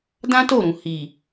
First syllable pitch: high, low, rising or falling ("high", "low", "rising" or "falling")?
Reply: high